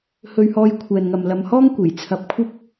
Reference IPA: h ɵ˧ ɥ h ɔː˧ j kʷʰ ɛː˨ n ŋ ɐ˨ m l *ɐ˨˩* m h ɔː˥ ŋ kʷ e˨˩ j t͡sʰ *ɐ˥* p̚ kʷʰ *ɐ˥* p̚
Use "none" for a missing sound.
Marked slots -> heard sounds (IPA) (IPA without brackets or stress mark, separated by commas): ɐ˨, ɐ˧, ɐ˥